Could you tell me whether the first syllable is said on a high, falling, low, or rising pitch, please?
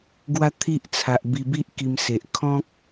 high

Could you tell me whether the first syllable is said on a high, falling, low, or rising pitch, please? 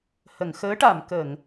low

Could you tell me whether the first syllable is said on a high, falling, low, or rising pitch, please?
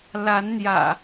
rising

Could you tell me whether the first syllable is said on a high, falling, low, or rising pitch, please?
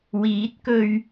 rising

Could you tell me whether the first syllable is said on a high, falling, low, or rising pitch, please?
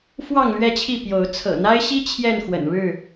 falling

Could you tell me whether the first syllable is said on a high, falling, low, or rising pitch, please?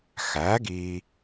rising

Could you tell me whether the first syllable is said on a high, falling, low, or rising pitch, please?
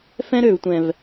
high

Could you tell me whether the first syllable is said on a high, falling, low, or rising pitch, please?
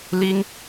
high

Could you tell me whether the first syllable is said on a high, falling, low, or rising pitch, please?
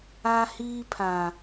high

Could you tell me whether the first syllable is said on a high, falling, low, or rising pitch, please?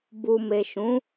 low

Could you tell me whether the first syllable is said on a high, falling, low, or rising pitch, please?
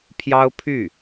high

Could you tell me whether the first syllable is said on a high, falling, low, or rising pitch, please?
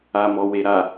low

